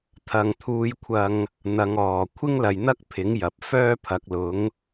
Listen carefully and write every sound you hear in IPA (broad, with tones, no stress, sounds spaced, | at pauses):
t̪ʰ ɐ˨ ŋ t̪ʰ uː˧ j kʷʰ ɐ˧ ŋ | n̪ ɐ˨˧ ŋ ɔː˨˩ kʷʰ ɪ˥ ŋ l ɐ˨ j n̪ ɐ˥ k̚ pʰ ɪ˨˥ ŋ j ɐ˨ p̚ f œː˥ pʰ ɐ˨˥ k̚ l ʊ˨˥ ŋ